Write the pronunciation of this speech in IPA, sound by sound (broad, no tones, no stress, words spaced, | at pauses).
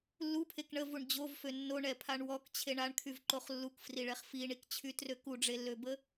lːupʰek ɳəvuɳ d͡ʑovfø nːoɳɛpʰaɳ wɔkt͡ɕʰeɳ aɳkʰyvǃoχ lːukfriɭɛχ fiɳikt͡ɕʰytrø kuɖ͡ʐelːøbə